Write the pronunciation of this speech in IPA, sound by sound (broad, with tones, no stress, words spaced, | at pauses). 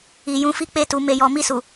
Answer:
i˨jũ˨˦fi˦ k͡pe˧tu˨ me˨jɔ˨ mi˧su˨